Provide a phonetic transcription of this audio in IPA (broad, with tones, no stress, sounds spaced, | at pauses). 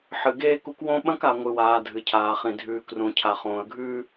ħ ɨ˨ ɡ eː˦ k u˦ k w õ˦ ɓ ɐ̃˦ k a˨ ŋʷ ɨ˨ w aː˨ dʱ ɨ˨ cʰ aː˨ χ ĩ˨ dʱ ʉː˨ k r ũ˨ cʰ a˨ χ õː˨ ə̯ ɡʱ ʉː˦